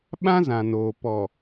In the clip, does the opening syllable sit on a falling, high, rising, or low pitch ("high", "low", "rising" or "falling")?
high